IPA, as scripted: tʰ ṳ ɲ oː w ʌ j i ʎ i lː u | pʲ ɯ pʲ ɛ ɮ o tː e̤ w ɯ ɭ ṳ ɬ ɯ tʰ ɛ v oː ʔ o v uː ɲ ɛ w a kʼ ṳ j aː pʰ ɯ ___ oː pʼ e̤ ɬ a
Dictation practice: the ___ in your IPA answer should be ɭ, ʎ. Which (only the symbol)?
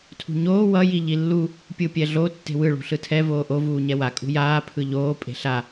ʎ